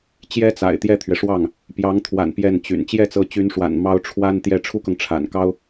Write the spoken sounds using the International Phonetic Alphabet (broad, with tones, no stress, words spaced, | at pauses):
t͡ɕjɛ˥t͡sa̰˨˩ɪ̯ t̪jɛ˥˩t̪ʰɥɛ˩ʂwɑ˥˩ŋ | pjɑ˧˥ŋt̪ʰwa̰˨˩n pjɛ˥˩nt͡ɕy̰˨˩n t͡ɕjɛ˥˩t͡sɤ˧˥t͡ɕy˧˥nʂwa̰˨˩n mɑ˥ʊ̯ʈ͡ʂʰwa˥nt̪jɛ˥˩ ʈ͡ʂʰu˥kɤ˨ŋ ʈ͡ʂʰa̰˨˩nkɑ˥ʊ̯